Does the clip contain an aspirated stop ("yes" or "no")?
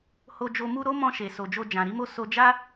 no